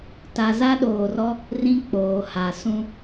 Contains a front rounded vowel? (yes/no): no